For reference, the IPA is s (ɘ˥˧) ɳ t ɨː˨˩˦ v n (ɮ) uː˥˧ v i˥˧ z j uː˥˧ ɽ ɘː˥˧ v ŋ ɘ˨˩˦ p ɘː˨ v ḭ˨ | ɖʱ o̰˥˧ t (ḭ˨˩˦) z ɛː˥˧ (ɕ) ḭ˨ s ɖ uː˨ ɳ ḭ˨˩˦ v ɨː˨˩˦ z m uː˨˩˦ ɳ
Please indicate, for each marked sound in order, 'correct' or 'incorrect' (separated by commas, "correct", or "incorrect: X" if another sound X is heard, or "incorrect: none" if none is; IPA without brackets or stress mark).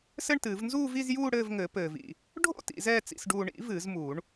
correct, incorrect: z, correct, incorrect: t͡s